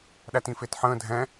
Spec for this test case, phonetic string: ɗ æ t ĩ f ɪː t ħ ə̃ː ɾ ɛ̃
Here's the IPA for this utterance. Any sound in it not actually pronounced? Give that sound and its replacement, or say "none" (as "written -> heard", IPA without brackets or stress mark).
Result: ɾ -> dʱ